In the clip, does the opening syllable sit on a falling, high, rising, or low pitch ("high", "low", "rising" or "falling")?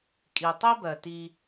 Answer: low